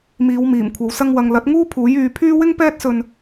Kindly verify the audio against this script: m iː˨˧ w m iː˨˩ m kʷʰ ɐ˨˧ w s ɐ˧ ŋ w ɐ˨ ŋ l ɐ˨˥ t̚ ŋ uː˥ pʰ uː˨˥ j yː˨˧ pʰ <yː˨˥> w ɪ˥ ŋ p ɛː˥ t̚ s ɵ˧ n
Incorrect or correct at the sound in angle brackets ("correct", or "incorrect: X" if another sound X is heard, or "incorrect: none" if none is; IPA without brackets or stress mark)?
incorrect: yː˥